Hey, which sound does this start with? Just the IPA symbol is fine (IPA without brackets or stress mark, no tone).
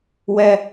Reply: w